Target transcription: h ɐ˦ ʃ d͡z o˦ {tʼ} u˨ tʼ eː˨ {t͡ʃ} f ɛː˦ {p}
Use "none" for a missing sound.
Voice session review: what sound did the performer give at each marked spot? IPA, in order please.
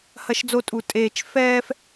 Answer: tʼ, t͡ʃ, f

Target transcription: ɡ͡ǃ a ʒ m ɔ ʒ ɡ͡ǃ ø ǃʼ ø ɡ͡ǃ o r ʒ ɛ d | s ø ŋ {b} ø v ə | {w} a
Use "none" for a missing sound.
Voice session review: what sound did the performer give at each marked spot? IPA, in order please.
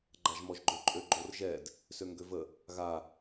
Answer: ɡ, ɣ

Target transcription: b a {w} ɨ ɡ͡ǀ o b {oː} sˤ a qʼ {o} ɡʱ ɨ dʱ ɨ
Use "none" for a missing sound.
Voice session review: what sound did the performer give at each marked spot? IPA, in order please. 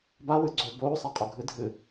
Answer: w, oː, o

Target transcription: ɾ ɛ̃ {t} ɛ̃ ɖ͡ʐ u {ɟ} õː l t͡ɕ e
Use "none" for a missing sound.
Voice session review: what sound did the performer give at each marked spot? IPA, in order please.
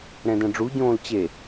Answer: d, ɟ

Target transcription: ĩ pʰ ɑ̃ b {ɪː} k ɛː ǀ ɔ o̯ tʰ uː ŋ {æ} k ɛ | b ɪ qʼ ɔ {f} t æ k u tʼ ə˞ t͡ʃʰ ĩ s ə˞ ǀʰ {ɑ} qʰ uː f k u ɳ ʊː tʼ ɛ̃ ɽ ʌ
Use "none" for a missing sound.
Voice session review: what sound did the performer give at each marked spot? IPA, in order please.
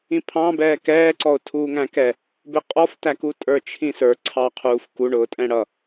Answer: ɛː, æ̃, f, ɑ

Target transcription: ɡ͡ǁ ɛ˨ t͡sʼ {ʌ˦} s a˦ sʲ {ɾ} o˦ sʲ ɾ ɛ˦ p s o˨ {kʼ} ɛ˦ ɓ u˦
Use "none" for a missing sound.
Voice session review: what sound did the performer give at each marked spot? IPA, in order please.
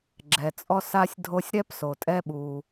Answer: ɔ˦, dʱ, tʼ

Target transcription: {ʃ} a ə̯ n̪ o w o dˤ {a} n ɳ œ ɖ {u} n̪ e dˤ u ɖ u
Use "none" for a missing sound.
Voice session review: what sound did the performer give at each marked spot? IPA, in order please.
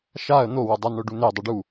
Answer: ʃ, a, u

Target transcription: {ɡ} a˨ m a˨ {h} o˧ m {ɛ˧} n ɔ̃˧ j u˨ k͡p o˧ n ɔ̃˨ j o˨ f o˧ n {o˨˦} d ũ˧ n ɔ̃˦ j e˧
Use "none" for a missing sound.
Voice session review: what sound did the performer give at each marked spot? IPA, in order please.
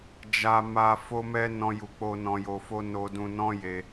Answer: d͡ʒ, f, ɛ˧, o˧

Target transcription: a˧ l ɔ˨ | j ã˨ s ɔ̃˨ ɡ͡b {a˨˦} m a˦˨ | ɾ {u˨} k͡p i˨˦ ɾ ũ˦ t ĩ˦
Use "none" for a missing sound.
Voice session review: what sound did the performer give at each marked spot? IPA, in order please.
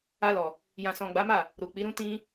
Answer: a˨˦, u˨

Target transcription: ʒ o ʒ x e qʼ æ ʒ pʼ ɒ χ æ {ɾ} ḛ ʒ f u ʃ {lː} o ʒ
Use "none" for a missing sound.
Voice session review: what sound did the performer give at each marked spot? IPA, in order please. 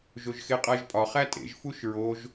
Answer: tʼ, ɹ

